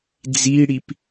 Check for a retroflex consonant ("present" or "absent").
present